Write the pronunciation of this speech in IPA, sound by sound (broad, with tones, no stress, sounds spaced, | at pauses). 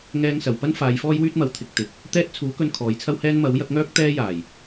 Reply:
ŋ ɛː˥ ŋ s ɐ˨ w p ɐ˥ n f aː˨˧ j f ɔː˥ j w yː˥ t̚ m ɐ˨˥ w t̪ʰ ɪ˨ k̚ t̪ ɪ˨˥ k̚ | t̪ ɛː˥ t̚ t͡sʰ uː˨˥ k ɵ˧ n kʰ ɔː˨˥ j t͡sʰ ɐ˥ w h ɛː˥ n m ɐ˨˥ w j ɐ˨˥ k̚ ŋ œː˥ k̚ t̪ ɛː˥ j aː˨˩ j